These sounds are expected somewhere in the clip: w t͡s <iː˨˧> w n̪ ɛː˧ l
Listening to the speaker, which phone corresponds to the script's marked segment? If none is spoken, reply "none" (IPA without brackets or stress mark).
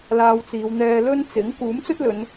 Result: iː˨˧